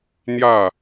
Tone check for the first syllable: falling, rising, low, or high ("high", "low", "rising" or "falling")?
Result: falling